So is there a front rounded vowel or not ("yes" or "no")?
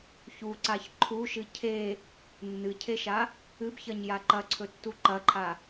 no